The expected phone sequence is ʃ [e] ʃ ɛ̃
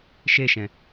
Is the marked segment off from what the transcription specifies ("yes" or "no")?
no